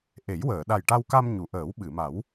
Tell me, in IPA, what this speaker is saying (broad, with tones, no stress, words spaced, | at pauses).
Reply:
ʔe˨˩˦jwəː˨˩˨ ɗa˨˩jʈa˧wka˧m ɲu˨˩˨ʔəː˨˩˦wɓɨ˨˩˨ma˨˩˦w